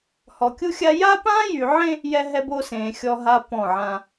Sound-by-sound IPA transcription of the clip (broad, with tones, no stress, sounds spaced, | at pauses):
h ɔ˨ kʲ u˦ xʲ a˦ j a˦ p ãː˦ j y˨ ʕ ẽ˦ | j ɛ˦ ɦ ɛ˦ b o˦ s ẽː˨ xʲ ɔ˦ ɦ a˦ p ɔ̃˦˨ ʕ ã˦